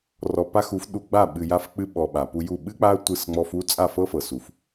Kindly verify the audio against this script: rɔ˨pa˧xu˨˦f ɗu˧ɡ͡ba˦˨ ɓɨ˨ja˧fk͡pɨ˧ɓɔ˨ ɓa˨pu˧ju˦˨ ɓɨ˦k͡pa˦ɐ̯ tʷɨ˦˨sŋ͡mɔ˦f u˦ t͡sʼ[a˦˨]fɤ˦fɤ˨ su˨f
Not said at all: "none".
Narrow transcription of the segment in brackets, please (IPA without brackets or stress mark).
a˦˨